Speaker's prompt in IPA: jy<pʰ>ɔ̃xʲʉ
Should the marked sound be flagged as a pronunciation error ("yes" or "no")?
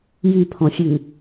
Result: no